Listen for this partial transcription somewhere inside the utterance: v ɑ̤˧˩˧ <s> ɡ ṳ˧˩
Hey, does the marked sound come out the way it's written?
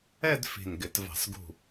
yes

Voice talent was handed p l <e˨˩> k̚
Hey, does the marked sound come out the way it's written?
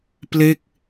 no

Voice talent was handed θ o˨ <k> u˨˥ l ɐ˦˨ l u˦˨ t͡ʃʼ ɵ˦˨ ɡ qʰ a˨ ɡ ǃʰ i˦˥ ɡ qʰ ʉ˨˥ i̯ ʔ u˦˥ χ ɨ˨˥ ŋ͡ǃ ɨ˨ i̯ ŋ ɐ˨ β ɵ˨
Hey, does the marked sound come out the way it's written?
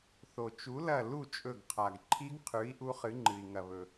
no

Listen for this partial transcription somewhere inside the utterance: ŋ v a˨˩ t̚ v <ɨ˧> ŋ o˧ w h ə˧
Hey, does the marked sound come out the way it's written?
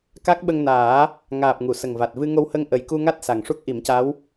yes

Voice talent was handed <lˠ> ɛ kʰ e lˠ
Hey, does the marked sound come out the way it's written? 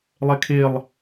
yes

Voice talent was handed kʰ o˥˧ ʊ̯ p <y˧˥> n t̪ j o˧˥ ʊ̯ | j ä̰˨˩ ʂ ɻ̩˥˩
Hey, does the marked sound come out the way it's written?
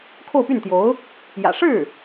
no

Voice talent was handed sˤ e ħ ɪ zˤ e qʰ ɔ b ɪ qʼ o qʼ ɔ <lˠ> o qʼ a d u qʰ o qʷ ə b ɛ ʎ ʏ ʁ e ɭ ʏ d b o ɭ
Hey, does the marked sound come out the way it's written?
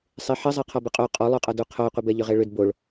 yes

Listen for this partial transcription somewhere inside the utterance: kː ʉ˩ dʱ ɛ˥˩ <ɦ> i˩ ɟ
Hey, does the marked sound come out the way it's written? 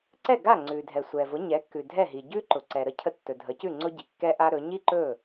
yes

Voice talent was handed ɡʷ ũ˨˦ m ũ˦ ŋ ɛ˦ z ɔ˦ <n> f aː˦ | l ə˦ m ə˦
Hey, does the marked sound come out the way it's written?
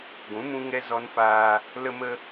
yes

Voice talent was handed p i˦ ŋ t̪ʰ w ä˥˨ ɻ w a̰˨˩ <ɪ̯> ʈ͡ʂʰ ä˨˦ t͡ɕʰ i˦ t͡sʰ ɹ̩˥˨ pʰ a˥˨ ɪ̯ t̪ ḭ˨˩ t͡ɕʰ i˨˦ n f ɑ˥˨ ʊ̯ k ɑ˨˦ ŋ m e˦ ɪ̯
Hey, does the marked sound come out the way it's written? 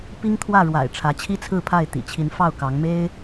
yes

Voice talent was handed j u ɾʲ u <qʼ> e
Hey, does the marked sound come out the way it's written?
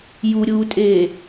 no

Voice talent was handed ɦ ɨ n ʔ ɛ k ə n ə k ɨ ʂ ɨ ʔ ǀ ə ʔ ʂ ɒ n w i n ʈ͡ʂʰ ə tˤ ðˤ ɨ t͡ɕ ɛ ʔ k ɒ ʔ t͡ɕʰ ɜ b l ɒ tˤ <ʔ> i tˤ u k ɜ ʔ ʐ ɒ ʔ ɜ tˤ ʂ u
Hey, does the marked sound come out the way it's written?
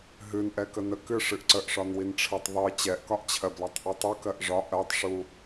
yes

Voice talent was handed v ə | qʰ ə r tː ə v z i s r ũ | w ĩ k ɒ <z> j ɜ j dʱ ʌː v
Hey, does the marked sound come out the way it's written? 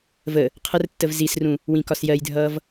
no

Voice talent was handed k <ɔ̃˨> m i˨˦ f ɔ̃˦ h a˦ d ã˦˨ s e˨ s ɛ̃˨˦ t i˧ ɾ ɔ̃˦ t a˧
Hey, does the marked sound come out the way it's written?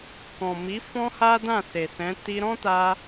yes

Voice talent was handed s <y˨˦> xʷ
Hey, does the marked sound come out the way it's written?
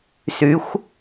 yes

